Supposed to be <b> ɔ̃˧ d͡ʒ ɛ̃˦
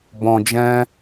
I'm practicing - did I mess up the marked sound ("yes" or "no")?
no